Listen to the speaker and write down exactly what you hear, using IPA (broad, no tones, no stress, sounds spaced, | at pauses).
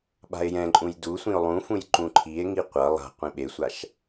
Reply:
ɓ a̤ e̯ j ɛ̃ ǃʼ ũ j d u sʷ ĩ o̯ lˠ ũ f ũ j ǃ ũ ǃʰ i e̯ ŋ i qʷ ʌ lˠ a̤ qʷ ĩ ɓ e sʷ a ʃ